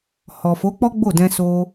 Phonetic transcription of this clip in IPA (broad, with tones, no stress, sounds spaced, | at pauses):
h ɔ˨ f o˨˦ k͡p ɔ˦ ɡ͡b o˦˨ d ɛ̃˧ s o˧